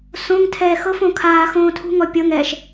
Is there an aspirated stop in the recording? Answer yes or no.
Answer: yes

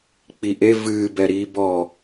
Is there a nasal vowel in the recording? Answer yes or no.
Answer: no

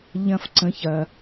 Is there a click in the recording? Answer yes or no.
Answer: yes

